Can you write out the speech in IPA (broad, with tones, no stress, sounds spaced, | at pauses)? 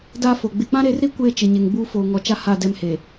d a˦ f o˨ ɡ͡b ɪ˦ k͡p ã˦ ɾ e˨˦ r ɾ i˦ kʷ eː˦ t͡ʃ ɪ˨ ɲ e˨ ŋ ɡ͡b uː˦ f oː˨ ŋ ɔ˨ t͡ʃ a˦ h a˦˨ d ɛ˦ m h e˨